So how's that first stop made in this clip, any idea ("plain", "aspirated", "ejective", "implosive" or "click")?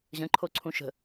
click